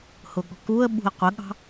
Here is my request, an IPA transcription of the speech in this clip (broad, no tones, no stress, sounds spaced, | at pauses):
h ʊ ɠ ɔ̤ k u ə̯ ɓ ṳ ə̯ qʷ ə ɠ ɑ̤